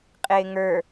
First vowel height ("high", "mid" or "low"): high